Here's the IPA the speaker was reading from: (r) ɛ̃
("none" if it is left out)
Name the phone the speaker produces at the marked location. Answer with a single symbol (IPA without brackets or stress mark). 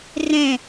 r